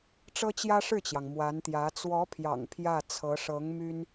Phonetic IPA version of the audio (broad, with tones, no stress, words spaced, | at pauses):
ʈ͡ʂɤ˥t͡ɕjä˥ʂɻ̩˥˩t͡ɕjɑ˩ŋ mwa˧˥nt̪jä˧˥ t͡swɔ˧˥pʰjɑ̰˨˩ŋ pʰjä˥˩t͡sʰɤ˧˥ ʂɤ˧˥ŋmy˥n